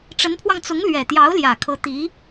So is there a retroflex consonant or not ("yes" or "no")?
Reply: yes